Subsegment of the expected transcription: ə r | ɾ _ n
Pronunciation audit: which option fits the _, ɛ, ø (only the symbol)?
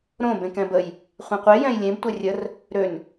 ø